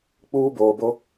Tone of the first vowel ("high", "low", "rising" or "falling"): high